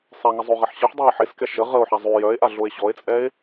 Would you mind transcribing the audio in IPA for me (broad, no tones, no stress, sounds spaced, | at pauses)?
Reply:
sˤ ɛ ŋ ə zˤ o ʁ ɛ ħ ɕ ə ħ dˤ ɛ e̯ ħ e s k ɛ ʃ ə ʁ ə o̯ ħ a zˤ y j œ e̯ ʔ a ɮ o e̯ ɕ ɔ e̯ t͡sʼ ɛ e̯